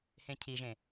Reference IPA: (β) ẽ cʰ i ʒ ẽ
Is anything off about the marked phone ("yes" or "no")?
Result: yes